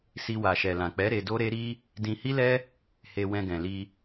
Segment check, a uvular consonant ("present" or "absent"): absent